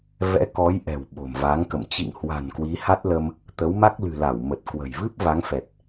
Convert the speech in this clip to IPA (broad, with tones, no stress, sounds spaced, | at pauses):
v ɛ̰˧˥ k ɔ˨˦ j ʔ ɛ̤˨˩ w ɓ o̤˨˩ m v a˨˦ ŋ k ə̰˧˨ m t͡ɕ ḭ˧˨ ŋ h w a̤˨˩ n k w i˨˦ h a˦˥ t̚ l ə˧ m | t̪ ə˨˦ w m a˦˥ k̚ l ɨ̤˨˩ l a˧˩ w m ə˨˩ t̚ k w ə̤˨˩ j v ɨ˦˥ p̚ v a˨˦ ŋ f ɛ˨˩ t̚